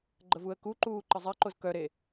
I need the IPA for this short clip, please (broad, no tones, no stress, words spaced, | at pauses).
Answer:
ɡ͡ǃəvuə̯kuǃuː ǃəzˤɛǃoz kœɾe